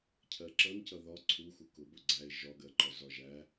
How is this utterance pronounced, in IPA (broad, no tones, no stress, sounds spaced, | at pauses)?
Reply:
cʰ ɜ ǁ ʌ n c ʌ ð ɒ ǀʰ u x u k ʊ b ʊ ɡ͡ǀ æ ɪ̯ ʒ ɒ ɡ ɜ ǃ ɒ z ɒ ʒ æ